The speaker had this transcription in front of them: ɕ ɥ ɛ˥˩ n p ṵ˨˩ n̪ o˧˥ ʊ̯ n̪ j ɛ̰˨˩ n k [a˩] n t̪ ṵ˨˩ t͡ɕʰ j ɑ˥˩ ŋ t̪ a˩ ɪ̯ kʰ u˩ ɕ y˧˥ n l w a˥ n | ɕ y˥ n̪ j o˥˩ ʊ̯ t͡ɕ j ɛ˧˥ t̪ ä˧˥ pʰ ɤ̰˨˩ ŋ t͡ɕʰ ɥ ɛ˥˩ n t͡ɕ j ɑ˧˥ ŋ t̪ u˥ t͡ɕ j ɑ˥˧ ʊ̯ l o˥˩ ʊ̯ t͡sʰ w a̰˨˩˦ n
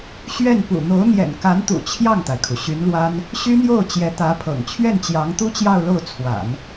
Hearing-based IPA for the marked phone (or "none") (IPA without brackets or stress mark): a˧˥